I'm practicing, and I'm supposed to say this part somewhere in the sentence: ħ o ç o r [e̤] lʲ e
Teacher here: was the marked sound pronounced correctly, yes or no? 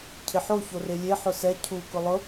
no